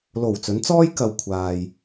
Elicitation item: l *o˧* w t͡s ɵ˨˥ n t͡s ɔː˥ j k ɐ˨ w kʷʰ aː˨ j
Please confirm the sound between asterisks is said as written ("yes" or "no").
no